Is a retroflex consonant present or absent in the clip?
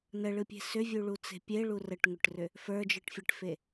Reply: present